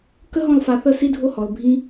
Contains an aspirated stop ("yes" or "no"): no